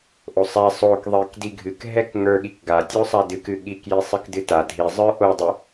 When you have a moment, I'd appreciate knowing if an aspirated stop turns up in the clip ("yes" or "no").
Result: no